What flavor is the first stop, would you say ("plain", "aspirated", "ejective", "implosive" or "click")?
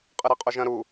ejective